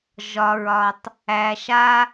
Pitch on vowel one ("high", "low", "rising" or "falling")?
low